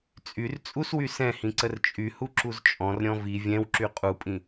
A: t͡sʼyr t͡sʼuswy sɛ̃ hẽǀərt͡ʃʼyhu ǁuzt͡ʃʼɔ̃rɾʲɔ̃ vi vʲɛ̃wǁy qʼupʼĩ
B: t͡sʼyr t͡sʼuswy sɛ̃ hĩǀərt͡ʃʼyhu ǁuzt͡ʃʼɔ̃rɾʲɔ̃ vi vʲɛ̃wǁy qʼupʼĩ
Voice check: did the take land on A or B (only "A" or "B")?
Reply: B